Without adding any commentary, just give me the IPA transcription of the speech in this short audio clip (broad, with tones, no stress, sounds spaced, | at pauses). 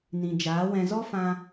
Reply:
n ĩ˨ d͡ʒ aː˨˦ w ɛ̃˧ z ɔ˦ f ã˧